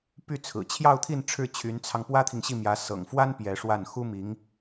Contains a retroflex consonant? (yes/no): yes